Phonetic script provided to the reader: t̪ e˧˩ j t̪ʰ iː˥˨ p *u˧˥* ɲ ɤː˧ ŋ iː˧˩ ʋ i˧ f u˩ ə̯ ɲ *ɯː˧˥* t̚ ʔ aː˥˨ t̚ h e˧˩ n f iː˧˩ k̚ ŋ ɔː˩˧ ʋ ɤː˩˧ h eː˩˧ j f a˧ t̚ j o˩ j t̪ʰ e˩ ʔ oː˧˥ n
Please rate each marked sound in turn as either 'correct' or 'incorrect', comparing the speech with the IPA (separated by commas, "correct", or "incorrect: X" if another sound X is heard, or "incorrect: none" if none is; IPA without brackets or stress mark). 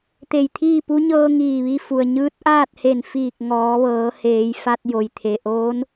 correct, correct